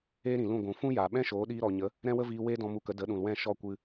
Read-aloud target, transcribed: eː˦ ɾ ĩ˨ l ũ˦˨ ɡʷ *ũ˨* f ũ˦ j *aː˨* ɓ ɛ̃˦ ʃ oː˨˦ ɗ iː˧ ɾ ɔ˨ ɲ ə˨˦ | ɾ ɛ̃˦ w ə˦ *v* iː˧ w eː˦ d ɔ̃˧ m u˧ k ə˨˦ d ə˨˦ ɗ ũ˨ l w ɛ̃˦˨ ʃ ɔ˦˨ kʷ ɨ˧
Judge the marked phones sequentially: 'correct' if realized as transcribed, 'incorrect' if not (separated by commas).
correct, correct, correct